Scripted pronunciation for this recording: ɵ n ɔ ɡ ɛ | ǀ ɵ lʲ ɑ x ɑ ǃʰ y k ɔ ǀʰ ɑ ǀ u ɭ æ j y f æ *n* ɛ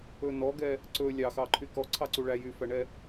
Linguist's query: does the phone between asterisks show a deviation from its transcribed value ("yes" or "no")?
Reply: yes